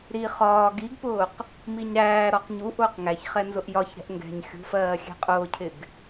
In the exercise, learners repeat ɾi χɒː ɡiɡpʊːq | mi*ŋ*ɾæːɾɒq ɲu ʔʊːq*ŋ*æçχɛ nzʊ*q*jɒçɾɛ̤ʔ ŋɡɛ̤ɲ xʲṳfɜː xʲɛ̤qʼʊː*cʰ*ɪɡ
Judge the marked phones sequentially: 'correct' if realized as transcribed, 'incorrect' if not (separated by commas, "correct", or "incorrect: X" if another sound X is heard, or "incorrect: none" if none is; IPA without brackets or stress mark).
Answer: incorrect: ɲ, correct, incorrect: ʔ, correct